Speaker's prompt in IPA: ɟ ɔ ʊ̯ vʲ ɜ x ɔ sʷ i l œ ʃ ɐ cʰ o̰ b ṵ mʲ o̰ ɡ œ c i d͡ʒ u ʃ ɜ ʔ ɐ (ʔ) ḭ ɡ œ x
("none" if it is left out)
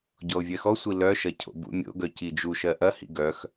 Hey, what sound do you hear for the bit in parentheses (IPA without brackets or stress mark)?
h